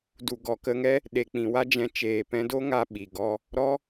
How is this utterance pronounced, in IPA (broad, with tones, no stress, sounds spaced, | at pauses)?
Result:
d u˨ ɡ ɔ˨ k ə˧ ŋ ɛ˦ | ɗ e˨ k͡p ĩ˨ w a˦ d͡ʒ ɛ̃˧ t͡ʃ eː˨ p ɛ̃˧ d o˦ ŋ a˧ ɓ i˨ ɡ ɔ˦ | ɾ ɔ˦